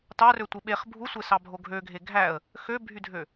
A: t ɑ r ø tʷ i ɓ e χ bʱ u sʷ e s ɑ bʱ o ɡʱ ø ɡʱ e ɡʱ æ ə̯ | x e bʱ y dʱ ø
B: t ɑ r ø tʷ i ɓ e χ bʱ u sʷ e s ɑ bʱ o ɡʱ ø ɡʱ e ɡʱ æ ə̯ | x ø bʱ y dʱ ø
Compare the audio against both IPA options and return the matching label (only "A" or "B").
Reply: B